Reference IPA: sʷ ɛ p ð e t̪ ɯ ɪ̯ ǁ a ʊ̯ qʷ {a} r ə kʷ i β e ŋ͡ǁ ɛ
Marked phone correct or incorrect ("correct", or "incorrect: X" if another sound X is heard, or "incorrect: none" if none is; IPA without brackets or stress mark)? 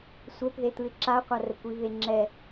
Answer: correct